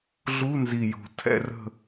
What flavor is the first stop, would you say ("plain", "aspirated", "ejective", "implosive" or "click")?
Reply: aspirated